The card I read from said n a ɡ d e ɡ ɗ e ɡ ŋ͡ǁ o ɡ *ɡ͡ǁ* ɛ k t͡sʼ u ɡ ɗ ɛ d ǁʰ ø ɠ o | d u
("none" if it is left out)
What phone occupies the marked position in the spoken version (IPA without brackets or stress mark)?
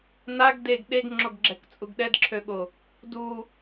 ɡ͡ǁ